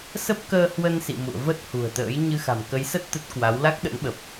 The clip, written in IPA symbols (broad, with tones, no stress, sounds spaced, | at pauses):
s ə˦˥ p̚ k əː˧ h w ə˧ n s ḭ˧˨ m ṵ˧˨ ə̯ v ə˦˥ t̚ h ṳ˨˩ ə̯ t̪ ə̰ː˧˥ j ɲ ɨ˧ x a̤˨˩ m k ə˨˦ j s ə˦˥ t̚ t̪ ə˦˥ t̚ k w a˨˦ w l a˦˥ k̚ ɗ ə̰˧˥ n ɓ ə˨˩ p̚